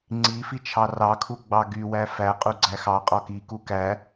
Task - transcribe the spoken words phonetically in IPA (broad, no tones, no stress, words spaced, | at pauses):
ŋ͡ǀi fit͡ʃʰɑrɑkʰu ɡ͡bɑɡywæ fæqʼu ɡ͡ǀæxɑqʼɔ kiku kæ